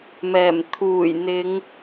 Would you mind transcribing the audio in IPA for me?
m ɛː˨˩ m t̪ʰ uː˨˩ j n̪ ɪ˨˧ ŋ

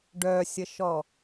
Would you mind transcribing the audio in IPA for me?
ɖ œ sʲ ə ʃ ɔ

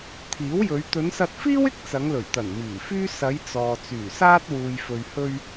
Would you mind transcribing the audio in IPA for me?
t̪ʰ iː˨˥ w j ɵ˨˧ ɥ t̪ ɵ˨˧ n s ɐ˧ t̚ f iː˥ w ɪ˥ k̚ t͡s ɐ˨˧ ŋ l ɵ˨˩ ɥ t̪ ɐ˨˩ n m iː˨˩ f yː˥ s ɐ˨˧ j t͡s ɔː˨ t͡s yː˨˩ s aː˥ t̚ w uː˨ j f ɵ˨ ɥ h ɵ˧ ɥ

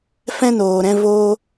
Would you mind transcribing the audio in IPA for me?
f ɛ̃˦ n oː˨ ɾ ɛ̃˧ v oː˧

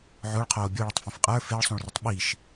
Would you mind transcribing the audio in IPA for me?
ʕ o ɭ qʰ oː bʲ o ɭ ʊ tˤ f ẽ f qʼ ə˞ f e ɭ sˤ ũ ɭ r ʊ tˤ ɓ i ʃ

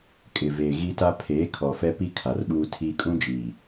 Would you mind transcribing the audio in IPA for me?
kʼ ɪ˨ v eː˨ ɣ i˦ t a˦ pʰ eː˨˦ kʰ ɔ˨ f ɛ˦ p i˦ kʰ a˨ r ɓ uː˦ tʰ iː˦ kʼ ũ˦ d͡ʒ iː˨

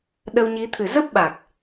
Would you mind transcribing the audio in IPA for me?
ɗ ə˧ w ɲ i˨˦ t̪ʰ ɨ˨˩ z ə˦˥ p̚ ɓ a˨˩ k̚

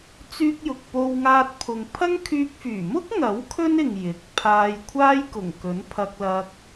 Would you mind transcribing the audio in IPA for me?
t͡s yː˧ k̚ j ʊ˨ k̚ p o˧ w ŋ aː˧ t̚ pʰ ʊ˨ ŋ pʰ ɐ˥ ŋ kʰ yː˧ k̚ f yː˨˩ m ʊ˥ k̚ ŋ ɐ˨˥ w kʰ ɵ˥ n ɪ˨ ŋ j ɪ˨ k̚ pʰ aː˧ j kʷʰ aː˥ j k ʊ˨˩ ŋ k ɵ˨˥ n pʰ ɐ˧ k̚ l ɐ˧ k̚

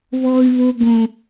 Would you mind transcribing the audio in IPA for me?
β ɔ˦ y̯ β o˦ ɡ õ˦

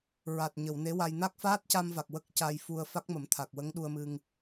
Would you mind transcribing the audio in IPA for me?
ɹ a˨˩ t̚ ɲ ə˨˩˨ w n e˧˥ w a˧ j n a˦˥ k̚ f aː˦˥ t̚ c a˧ m v a˨˩ k̚ w ə˦˥ k̚ c a˧ j f u˧ ə̯ f a˦˥ k̚ m ə˨˩˦ m t̪ʰ a˨˩ k̚ w ə˧˥ ŋ ɗ u˧ ə̯ m ɨ˧ ŋ

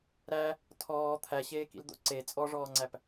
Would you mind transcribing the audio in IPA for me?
ɾ æ | tʰ ɔː t̪ʰ æ ɕ eː k ḭ l d̪ o̰ ǀ e t͡sʼ ɔ ʐ ɔː ŋ͡ǀ æ p

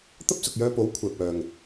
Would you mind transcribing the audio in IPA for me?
t̪ ɐ˥ p̚ s ʊ˨ k̚ j œː˧ p o˨˥ w kʷʰ ɛː˨ p̚ œː˨ ŋ

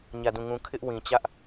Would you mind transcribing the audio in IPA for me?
ɲ ä˦˨ d ũ˦˨ ŋ ũ˦ kʰ ɪ˦ ʔ w ĩ˨ t͡ɕ ä˦ ʔ

